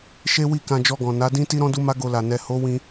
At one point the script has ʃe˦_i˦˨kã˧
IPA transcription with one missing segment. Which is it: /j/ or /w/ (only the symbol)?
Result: w